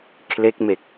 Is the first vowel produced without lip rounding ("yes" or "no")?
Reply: yes